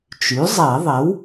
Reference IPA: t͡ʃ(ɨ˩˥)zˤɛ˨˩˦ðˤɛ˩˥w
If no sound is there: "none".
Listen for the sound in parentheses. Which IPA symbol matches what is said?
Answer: y˩˥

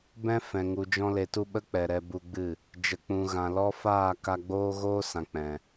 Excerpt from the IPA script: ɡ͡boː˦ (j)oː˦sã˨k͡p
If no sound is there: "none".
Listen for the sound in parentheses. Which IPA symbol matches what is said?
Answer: ɣ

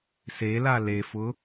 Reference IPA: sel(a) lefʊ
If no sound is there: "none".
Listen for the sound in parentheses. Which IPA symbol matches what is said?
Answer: a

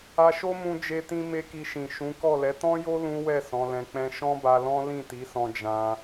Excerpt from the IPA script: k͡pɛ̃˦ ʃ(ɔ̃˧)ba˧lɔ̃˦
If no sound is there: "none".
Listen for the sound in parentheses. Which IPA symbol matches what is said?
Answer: ɔ̃˦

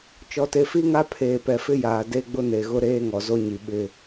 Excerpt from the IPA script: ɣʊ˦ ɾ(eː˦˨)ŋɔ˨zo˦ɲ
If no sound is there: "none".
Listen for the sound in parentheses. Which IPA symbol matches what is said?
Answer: eː˦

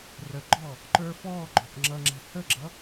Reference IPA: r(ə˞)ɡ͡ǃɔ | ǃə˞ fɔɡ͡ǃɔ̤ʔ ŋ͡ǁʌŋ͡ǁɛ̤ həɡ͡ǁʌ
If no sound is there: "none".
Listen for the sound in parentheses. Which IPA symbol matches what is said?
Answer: ə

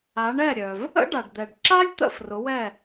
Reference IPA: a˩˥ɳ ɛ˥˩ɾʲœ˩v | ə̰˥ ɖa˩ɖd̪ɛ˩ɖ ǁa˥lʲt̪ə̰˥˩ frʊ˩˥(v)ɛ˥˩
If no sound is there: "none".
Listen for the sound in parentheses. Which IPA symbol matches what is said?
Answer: w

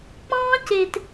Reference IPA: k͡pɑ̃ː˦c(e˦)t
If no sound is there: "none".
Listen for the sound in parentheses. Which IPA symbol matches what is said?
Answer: e˨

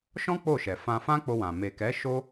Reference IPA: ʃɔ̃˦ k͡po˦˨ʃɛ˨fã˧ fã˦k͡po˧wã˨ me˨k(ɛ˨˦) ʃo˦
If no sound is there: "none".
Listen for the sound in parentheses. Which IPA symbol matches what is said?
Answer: ɛ˨˦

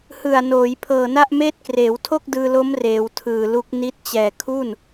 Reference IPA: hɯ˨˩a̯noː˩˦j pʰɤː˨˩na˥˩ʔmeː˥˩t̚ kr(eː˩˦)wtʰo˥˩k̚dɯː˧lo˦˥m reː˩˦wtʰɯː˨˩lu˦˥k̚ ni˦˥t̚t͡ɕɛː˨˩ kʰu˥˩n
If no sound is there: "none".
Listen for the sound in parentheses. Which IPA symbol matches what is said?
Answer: eː˩˦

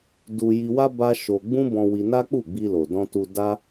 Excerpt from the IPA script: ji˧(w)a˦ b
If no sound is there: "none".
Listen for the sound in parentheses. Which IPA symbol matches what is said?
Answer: w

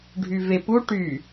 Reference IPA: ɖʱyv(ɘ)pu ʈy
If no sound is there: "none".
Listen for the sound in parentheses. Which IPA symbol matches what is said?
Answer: e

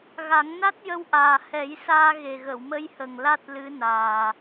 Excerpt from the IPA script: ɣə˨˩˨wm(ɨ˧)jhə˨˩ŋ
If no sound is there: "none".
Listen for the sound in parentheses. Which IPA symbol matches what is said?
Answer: ə˧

